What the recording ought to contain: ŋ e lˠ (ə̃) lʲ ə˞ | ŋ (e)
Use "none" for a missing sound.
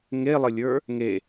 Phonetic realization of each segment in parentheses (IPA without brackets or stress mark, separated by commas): ə, e